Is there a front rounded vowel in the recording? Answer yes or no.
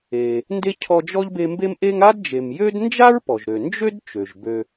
yes